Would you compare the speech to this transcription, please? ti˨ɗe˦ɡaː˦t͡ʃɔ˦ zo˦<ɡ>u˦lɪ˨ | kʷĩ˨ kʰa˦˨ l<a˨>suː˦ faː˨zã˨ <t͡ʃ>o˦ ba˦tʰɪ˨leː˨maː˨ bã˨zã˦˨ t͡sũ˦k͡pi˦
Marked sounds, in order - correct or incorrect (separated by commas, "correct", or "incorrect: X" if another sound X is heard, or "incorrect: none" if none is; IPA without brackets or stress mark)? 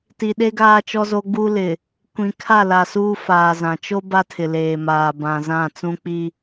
incorrect: ɡ͡b, correct, correct